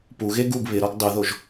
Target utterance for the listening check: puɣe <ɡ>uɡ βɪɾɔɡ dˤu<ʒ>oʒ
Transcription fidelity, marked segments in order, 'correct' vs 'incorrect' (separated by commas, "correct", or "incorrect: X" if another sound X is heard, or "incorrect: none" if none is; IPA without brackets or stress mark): correct, incorrect: ð